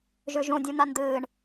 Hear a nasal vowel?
yes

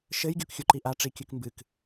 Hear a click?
yes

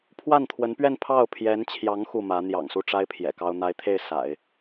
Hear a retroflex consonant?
yes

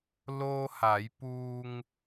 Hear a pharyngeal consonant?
no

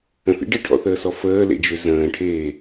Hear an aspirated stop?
yes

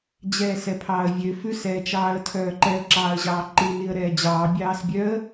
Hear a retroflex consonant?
no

